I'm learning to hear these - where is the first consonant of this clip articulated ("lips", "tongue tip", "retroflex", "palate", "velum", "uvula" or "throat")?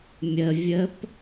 lips